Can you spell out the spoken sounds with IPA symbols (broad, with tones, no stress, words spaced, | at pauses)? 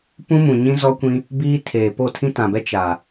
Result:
pũ˦mũ˨ ɲĩ˦zɔ˦kʷĩ˦ | biː˦ tʰeː˨ po˦˨tʰĩ˦tã˨bɛ˦ t͡ʃa˨